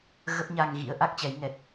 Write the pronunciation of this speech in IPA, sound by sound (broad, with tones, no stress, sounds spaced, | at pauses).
ɣ ə˦˥ p̚ ɲ a˧ ŋ ɣ ḭ˧˥ ə̯ ʔ a˦˥ k̚ t͡ɕ ɛ˨˦ j ŋ ɛ˨˩ t̚